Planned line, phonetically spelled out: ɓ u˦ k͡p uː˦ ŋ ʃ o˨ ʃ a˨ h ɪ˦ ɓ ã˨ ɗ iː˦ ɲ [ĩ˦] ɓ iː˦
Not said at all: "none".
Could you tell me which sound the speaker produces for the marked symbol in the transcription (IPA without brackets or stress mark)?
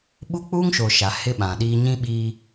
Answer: ĩ˦